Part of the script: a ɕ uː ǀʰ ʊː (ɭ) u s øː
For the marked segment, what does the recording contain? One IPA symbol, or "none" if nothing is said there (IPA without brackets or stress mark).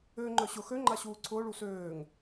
ɭ